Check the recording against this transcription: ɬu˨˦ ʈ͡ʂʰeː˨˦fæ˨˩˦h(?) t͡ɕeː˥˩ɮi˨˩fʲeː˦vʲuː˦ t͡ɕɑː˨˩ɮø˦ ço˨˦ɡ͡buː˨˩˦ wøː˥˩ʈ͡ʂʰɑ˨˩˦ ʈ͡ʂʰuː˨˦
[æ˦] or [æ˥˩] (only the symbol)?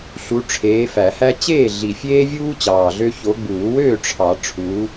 æ˦